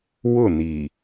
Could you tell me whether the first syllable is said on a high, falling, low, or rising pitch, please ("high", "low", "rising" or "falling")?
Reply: falling